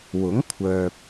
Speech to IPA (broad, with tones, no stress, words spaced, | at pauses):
wʊ˨˥ŋ kʷʰœː˨p̚